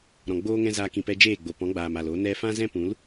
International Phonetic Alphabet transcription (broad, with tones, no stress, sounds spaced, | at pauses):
ɾ ɔ̃˨ ɡ͡b oː˦ ŋ ɛ̃˦ z aː˧ k ĩ˨ p ɛ˧ d͡ʒ eː˦˨ ɡ͡b o˨ p ɔ̃˨˦ ɡ͡b aː˨ m a˨ l o˨˦ n ɛ˦ f ã˦ z ɛ̃˦ p ũ˨˦ l